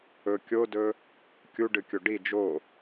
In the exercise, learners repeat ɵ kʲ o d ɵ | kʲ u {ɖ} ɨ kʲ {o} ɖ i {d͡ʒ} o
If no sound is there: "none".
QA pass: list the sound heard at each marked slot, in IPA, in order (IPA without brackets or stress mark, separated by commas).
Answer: ɖ, o, d͡ʒ